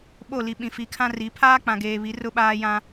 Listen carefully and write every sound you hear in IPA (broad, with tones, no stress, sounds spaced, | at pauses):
ɓ o˦˨ l i˨ ɓ ĩ˨ f i˨˦ kʰ ã˦ r i˨˦ pʰ aː˦ k͡p ã˨ ɡ eː˨ β i˨˦ r ʊ˦ ɓ aː˦ j ã˦